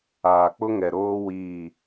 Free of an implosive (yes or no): yes